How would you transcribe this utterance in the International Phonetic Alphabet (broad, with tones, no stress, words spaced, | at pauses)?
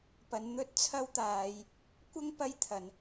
pɐ˨˧nn̪ɵ˥t̚t͡sʰɐ˥wt̪aː˨˧j | kʷɐ˥ŋ pɐ˥jt̪ʰɐ˨˧n